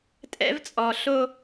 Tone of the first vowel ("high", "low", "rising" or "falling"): high